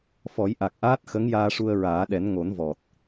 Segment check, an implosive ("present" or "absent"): present